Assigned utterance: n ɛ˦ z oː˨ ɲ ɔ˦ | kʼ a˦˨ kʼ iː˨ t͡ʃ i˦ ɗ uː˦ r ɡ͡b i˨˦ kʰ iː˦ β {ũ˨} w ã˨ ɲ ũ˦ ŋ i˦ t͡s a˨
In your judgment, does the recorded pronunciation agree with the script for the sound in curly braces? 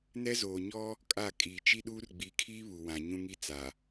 no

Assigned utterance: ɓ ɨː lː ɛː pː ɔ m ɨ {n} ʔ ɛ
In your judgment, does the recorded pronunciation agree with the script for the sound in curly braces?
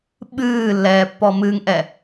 no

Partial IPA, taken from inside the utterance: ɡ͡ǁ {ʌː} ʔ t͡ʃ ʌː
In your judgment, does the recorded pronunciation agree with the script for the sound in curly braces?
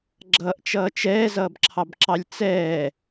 no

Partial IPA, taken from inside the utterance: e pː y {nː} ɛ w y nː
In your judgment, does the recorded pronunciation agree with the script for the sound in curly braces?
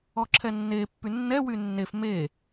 yes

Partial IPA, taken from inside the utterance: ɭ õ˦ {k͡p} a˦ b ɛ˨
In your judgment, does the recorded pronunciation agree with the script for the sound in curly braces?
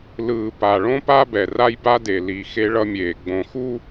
no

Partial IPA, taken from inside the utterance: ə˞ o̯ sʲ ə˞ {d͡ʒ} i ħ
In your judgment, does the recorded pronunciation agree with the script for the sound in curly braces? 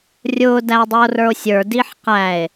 no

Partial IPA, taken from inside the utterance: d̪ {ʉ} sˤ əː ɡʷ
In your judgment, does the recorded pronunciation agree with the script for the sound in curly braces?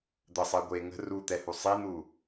no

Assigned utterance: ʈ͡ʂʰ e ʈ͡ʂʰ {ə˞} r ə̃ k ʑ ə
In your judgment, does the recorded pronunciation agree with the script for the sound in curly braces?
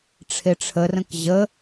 no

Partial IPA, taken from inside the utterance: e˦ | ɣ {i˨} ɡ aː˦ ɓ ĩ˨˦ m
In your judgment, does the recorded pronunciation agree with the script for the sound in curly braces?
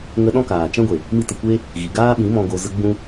yes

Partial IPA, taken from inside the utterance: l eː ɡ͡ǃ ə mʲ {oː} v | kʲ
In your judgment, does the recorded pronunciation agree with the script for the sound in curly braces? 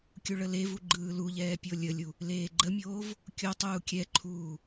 yes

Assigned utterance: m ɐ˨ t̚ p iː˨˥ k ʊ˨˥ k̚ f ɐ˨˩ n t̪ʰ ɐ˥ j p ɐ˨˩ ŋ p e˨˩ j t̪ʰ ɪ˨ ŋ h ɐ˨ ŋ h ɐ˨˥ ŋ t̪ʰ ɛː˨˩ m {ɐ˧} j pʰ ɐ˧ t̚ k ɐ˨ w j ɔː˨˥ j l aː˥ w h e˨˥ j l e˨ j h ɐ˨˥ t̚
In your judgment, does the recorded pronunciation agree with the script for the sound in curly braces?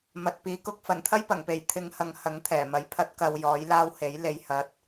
no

